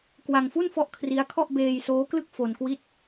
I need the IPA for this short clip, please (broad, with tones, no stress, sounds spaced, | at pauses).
k w a˧ ŋ f u˥˩ n f ɔ˦˥ ʔ kʰ r i˦˥ a̯ kʰ ɔ˥˩ ʔ b eː˧ j s oː˦˥ k l ɯ˥˩ k̚ f o˧ n k w i˥˩ t̚